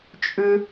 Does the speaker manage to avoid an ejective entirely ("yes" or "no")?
no